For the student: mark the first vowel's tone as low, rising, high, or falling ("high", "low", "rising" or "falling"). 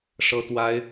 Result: high